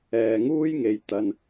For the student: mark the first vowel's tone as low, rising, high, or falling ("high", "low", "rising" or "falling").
low